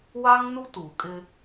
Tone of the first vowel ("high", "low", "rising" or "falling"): high